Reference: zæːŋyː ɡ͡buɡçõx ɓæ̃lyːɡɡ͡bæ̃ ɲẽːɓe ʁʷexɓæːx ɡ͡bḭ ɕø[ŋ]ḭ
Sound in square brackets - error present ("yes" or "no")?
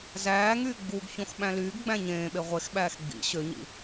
yes